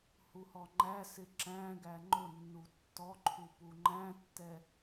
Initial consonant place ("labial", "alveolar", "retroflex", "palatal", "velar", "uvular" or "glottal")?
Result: glottal